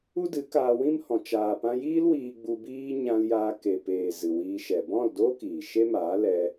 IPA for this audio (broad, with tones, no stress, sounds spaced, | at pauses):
u˦ d ɨ˨˦ k aː˧ w ĩ˦ m h ɔ̃˨ t͡ʃ aː˨ p ã˧ j iː˦ l w iː˧ ɡ͡b u˧ b iː˦ ɲ ã˧ l j aː˧ k e˨ p eː˨ z ɨ˨ w iː˧ ʃ ɛ˨ b ɔ̃˦˨ l d oː˦ k iː˨ ʃ e˦ m aː˨˦ l ɛ˧